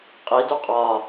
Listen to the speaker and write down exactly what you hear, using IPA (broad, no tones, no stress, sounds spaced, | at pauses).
qʼ i d u qʼ ɒ